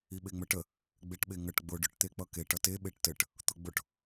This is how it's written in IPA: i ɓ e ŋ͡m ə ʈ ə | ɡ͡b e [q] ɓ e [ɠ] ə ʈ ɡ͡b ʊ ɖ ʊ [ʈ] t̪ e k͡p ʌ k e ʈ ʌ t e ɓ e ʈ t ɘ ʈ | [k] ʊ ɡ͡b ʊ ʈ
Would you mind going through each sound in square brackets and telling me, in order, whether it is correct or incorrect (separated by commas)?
incorrect, incorrect, correct, incorrect